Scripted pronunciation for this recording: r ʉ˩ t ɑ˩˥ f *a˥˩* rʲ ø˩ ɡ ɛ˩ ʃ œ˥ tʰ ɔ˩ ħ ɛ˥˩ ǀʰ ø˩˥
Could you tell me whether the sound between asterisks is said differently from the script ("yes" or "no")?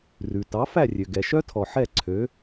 yes